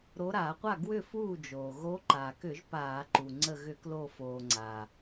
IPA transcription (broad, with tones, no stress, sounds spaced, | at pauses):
ɾ o˨˦ ɾ aː˧˩˧ qʷ a˥˩ ɡ w ʏ˥˩ f uː˥˩ d͡ʒ oː˩ ɣ oː˨˦ ǃ aː˩ k ʏ˧˩˧ ʒ p aː˧˩˧ ǃ u˩ ŋ͡ǀ ə˧˩ ɣ ʏ˧˩˧ k l o˧˩ f oː˩ ŋ͡ǀ aː˩